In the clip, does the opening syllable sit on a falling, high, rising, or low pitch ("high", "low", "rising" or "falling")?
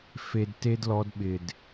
high